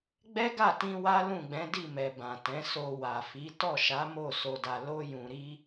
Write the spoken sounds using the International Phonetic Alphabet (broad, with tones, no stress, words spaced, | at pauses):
ɡ͡bɛ˦ɡa˦˨tĩ˧ wa˦lũ˦˨ɡ͡bɛ̃˨˦di˦˨ mɛ˨bã˨tɛ̃˨˦so˧ wa˨fi˨˦ tɔ˦˨ʃa˨˦mo˦˨ so˧da˧ lo˦jũ˧ɾi˦